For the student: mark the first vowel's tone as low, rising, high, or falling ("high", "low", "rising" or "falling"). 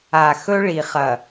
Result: low